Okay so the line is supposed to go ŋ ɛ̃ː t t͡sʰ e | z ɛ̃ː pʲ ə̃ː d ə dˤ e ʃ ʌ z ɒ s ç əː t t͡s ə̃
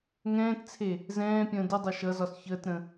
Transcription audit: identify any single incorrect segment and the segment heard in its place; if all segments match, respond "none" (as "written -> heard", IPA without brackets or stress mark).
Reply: t͡s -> ɾ